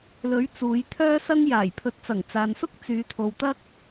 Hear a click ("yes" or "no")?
no